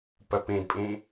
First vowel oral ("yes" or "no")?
yes